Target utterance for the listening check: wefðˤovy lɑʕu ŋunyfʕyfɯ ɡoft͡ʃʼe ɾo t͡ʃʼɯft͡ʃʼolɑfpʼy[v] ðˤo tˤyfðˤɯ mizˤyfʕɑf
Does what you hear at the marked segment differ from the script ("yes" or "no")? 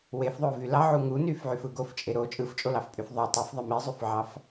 yes